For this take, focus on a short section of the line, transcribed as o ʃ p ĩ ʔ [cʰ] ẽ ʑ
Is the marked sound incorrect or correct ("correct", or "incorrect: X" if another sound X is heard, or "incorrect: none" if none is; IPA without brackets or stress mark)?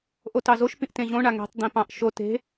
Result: incorrect: t